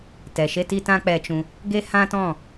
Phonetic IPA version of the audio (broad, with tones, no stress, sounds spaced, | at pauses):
t ɛ˨ ʃ e˦ t i˦ t ã˦ k͡p ɛ˧ t͡ʃ ũ˧ | ɡ e˦ h ã˦ t ɔ̃˦˨